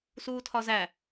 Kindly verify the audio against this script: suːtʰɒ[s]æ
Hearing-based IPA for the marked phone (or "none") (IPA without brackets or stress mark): z